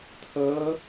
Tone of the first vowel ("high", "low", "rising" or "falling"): rising